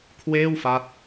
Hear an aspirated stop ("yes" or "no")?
yes